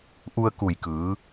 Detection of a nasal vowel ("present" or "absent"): absent